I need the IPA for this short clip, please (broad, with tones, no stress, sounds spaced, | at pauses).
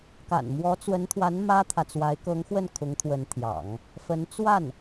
k a̰˨˩ n m w ɔ˧˥ t͡s w ə˧˥ n t̪ʰ w a˧˥ n m ä˥ t̪ʰ ä˨ t͡s w a˧˥ ɪ̯ k ɤ˧˥ ŋ x w ə˥˩ n kʰ ʊ˧˥ ŋ t̪ʰ w ə˧˥ n t̪ʰ j ɑ̰˨˩˦ ŋ | f ə˧˥ n t͡s w a˥˩ n